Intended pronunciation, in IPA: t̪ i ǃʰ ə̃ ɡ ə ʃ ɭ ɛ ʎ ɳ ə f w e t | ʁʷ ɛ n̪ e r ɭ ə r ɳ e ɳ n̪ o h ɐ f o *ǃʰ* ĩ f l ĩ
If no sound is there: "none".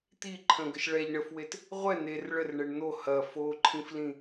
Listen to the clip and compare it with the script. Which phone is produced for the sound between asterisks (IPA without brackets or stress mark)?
ǃʰ